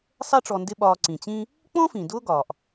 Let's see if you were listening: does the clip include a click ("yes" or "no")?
yes